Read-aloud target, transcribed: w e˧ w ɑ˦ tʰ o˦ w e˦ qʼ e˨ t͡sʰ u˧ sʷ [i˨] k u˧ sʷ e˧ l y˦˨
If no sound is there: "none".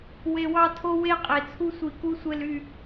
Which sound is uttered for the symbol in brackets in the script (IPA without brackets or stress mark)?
i˨